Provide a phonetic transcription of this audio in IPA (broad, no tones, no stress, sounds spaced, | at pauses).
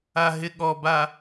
a ɦ ɪ ɠ ɔ b a